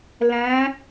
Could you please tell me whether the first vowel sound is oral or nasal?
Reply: nasal